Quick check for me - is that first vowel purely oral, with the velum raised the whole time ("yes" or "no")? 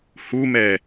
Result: yes